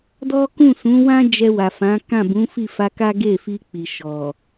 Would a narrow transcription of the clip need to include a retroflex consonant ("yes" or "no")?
no